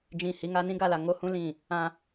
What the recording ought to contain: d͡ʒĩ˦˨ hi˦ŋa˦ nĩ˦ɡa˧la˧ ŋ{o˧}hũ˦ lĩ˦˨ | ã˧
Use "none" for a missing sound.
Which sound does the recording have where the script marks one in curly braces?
o˦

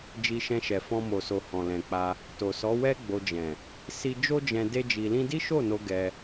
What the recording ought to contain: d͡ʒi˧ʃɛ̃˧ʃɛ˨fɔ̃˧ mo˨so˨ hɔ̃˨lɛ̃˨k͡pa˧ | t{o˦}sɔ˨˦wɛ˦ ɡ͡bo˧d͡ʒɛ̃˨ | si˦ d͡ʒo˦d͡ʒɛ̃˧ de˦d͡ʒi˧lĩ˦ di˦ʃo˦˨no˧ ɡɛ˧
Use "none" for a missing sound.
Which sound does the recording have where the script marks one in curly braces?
o˨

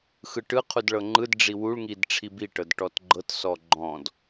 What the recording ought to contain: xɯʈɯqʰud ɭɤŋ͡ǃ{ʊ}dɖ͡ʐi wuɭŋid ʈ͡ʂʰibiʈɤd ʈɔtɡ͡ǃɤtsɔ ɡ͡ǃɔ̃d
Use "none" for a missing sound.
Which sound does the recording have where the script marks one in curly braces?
ɯ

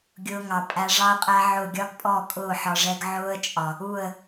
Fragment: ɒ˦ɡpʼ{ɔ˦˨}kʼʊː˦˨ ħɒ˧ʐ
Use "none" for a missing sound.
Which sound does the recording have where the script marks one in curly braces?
ɔ˦˨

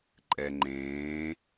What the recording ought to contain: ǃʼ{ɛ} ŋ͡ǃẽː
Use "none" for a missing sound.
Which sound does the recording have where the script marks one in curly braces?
ɛ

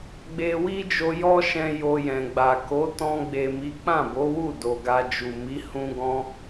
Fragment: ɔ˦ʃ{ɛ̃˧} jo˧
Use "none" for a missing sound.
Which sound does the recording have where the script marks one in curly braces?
ɛ̃˧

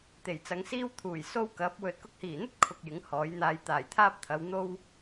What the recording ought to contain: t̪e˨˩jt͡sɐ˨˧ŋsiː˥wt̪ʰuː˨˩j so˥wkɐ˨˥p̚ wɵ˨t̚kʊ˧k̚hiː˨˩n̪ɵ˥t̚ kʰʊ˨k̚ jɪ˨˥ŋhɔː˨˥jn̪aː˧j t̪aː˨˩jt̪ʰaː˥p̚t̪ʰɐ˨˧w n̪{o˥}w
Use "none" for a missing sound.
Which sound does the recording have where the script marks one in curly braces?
o˥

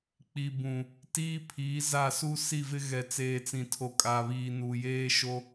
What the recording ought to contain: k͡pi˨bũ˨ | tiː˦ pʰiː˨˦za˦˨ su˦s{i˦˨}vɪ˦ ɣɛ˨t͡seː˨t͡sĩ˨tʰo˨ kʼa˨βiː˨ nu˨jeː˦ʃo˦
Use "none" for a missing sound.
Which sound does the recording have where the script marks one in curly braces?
i˦˨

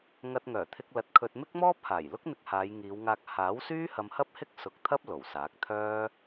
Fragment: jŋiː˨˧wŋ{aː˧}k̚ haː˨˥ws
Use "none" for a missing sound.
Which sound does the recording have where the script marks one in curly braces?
aː˧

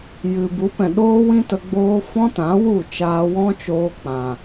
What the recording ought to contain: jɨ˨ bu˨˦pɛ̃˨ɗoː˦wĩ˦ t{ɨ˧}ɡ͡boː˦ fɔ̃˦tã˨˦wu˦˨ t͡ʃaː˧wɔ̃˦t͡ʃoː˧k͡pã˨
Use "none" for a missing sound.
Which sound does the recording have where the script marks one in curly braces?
ə˧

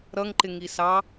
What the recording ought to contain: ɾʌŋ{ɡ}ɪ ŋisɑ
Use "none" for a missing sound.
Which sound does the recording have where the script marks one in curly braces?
ǃ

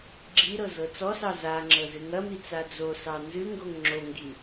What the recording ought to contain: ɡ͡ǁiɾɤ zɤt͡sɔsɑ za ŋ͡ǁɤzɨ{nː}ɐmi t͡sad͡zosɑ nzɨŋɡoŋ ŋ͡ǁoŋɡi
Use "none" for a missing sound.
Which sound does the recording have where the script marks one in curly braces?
ŋ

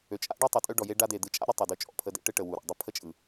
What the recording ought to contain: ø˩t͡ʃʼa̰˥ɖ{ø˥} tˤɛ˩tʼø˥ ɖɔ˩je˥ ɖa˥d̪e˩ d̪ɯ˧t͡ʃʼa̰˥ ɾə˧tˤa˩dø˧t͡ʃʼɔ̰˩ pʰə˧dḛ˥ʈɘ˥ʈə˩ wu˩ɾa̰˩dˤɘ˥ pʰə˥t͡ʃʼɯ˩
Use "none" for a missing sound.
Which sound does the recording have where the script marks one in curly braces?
ø˥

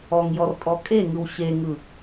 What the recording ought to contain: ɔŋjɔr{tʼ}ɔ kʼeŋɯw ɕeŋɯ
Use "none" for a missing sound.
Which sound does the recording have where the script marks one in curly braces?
tʼ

